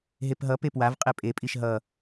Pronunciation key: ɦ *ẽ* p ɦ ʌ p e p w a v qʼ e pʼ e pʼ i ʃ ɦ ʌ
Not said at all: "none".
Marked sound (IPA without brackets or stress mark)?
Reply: e